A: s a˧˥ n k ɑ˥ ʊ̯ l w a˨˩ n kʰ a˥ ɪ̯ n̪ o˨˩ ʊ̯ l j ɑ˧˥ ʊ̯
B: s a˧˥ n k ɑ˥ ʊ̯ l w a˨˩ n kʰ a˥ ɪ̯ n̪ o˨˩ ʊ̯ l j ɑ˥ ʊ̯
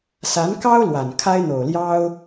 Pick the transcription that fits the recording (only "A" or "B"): B